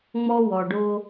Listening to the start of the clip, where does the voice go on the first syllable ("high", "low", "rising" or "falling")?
high